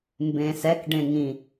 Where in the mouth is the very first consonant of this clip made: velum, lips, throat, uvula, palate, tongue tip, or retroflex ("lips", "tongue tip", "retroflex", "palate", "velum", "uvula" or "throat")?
lips